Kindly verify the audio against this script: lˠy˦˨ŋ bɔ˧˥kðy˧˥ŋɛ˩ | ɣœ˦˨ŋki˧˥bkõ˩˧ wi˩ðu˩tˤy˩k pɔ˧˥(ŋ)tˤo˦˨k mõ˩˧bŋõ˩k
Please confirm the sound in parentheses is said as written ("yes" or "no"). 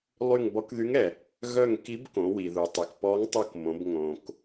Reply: yes